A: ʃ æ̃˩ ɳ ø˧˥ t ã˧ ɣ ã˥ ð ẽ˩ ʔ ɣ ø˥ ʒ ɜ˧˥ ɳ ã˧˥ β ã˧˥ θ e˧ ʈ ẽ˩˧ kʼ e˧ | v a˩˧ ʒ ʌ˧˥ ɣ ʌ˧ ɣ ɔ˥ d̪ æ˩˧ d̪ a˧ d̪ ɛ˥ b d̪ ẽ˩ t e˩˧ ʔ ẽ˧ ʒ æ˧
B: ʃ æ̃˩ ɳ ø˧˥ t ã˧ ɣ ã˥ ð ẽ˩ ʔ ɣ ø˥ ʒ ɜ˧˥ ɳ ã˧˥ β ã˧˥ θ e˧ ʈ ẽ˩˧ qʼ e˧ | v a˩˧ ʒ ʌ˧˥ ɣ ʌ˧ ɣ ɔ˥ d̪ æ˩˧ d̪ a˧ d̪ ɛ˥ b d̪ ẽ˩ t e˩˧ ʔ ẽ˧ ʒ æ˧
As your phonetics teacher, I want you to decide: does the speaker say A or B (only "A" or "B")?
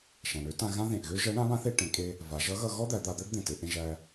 A